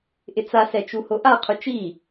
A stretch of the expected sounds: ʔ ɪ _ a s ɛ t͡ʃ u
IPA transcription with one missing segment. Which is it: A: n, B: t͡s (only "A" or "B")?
B